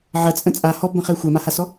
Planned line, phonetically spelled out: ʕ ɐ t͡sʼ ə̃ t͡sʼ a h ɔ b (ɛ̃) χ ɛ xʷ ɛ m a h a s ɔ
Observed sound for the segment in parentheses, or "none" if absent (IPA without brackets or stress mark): ə̃